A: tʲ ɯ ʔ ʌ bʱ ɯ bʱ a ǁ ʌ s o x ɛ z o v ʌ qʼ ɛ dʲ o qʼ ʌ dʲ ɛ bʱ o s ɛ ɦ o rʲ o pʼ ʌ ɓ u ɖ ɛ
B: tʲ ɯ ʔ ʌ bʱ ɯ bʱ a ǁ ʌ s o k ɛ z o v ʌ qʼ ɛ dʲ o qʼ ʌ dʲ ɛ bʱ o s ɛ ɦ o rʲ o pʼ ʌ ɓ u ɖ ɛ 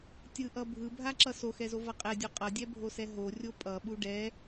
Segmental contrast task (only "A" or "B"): A